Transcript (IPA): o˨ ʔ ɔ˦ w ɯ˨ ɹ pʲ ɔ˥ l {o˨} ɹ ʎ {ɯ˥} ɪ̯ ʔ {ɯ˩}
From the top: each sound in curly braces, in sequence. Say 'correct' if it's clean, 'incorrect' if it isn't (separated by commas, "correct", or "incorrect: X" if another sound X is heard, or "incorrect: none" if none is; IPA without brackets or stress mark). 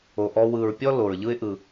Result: incorrect: o˩, correct, incorrect: ɯ˨